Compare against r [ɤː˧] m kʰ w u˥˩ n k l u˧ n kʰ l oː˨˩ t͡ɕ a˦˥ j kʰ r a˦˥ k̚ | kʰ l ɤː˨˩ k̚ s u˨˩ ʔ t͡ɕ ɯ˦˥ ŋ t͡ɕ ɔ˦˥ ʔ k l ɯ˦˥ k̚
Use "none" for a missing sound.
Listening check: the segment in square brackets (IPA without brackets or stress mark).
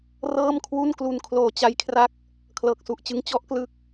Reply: ɤː˥˩